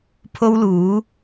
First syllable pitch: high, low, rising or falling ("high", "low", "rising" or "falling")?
high